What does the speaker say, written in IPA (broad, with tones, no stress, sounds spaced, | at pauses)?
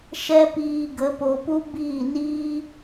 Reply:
ʃ ɛ˦ p iː˧ ɡ ə˨˦ p o˧ p u˦ b iː˦˨ n iː˦